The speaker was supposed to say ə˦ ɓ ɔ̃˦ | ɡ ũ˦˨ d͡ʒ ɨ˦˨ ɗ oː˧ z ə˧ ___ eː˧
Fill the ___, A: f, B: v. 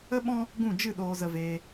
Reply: B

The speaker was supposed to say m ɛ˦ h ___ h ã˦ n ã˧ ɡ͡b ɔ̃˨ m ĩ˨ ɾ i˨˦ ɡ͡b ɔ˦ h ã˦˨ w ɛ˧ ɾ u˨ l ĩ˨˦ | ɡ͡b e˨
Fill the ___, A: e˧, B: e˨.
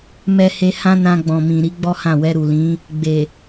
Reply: A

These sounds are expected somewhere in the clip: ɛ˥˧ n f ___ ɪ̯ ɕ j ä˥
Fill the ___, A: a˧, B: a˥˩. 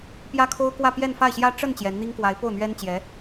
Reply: B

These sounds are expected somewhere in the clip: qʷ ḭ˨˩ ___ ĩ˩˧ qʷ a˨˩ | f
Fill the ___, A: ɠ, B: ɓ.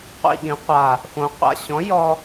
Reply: A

